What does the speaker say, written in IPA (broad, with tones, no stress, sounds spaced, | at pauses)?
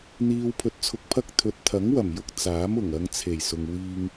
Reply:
n̪ iː˧ w pʰ ɵ˧ t̚ t͡sʰ ʊ˧ k̚ pʰ ɐ˥ k̚ t̪ʰ ɵ˨ t̚ t̪ʰ ɐ˨˥ ŋ w ɐ˨˩ m j ʊ˧ k̚ t͡s aː˨˥ m ʊ˨˩ ŋ ɐ˧ ŋ t͡sʰ e˨˩ j s ʊ˨ ŋ w iː˧ ŋ